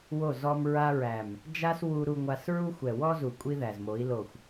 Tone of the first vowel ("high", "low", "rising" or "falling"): falling